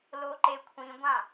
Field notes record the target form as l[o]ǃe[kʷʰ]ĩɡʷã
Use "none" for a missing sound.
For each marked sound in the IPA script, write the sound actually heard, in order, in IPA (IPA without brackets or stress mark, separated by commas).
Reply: o, kʷʰ